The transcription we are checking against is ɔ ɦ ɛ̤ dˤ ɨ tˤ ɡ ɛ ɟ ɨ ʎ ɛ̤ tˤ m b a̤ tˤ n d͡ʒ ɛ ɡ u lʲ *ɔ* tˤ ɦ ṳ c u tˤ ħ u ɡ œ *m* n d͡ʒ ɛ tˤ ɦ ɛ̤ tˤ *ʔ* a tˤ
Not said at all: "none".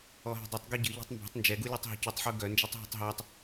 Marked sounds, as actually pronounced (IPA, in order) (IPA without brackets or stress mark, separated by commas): ɔ, none, ɦ